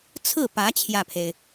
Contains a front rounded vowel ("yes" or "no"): no